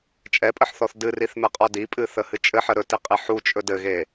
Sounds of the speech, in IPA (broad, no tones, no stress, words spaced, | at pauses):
t͡ʃʼɛpʼəħθɔθ dɨriθmɛqʼɔ dipʼɨθəhɨ t͡ʃʼɘħə ɾɵtiqʼi ħut͡ʃʼɵ dɘɣe